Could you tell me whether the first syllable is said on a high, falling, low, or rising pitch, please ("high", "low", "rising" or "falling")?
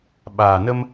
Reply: low